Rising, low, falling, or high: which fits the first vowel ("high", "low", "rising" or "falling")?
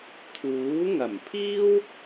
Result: rising